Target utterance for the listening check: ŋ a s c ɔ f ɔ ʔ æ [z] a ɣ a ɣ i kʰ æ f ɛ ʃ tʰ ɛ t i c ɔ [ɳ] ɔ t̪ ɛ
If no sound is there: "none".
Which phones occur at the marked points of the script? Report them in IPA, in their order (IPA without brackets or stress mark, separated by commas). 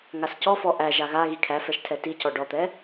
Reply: ʒ, ɖ